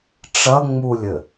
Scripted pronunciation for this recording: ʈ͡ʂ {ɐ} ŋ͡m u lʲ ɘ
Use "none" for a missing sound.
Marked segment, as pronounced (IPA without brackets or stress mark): ɐ